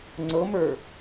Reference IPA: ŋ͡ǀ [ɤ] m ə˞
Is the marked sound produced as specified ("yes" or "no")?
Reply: yes